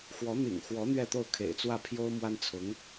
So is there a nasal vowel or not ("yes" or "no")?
no